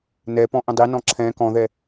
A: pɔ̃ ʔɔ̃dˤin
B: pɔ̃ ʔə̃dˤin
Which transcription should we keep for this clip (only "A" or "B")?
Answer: B